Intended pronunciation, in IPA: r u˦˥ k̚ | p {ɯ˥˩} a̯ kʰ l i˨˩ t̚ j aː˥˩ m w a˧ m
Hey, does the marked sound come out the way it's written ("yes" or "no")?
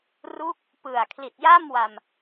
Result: no